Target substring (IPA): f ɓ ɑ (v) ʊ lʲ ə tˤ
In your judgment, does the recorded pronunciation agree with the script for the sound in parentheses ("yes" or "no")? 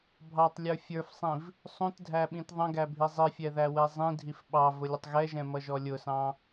yes